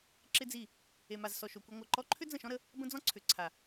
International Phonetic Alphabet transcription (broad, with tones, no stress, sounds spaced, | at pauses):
ǁ ɪ˦ d͡z i˦˨ | e˨ m a˨ z s ɔ˨ ʃ o˨ kʷ i˧ ŋʷ a˨ ǃ ɔ˧ ǃʰ ʏ˦ d͡z ə̃˦˨ ʃ ɔ̃˦ ɾ ə˧ | b ə̃˦ d͡z ɔ̃˦ ǀʰ ʏ˨ ǀʰ a˨